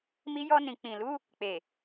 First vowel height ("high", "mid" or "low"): high